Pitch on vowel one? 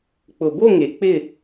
low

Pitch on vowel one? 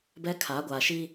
high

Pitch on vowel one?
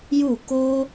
falling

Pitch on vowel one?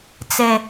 low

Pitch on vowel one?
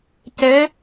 rising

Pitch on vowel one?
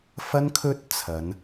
high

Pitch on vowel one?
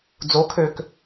rising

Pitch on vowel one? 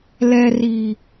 low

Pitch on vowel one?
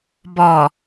low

